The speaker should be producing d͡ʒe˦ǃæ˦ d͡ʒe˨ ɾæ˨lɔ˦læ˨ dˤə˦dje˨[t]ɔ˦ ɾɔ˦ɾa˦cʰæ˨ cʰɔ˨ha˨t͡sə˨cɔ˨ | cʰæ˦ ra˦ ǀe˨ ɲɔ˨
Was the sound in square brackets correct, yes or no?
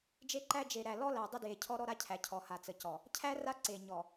no